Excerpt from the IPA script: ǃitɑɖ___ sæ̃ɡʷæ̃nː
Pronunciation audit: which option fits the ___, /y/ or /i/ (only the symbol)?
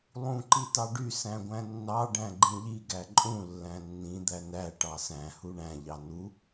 y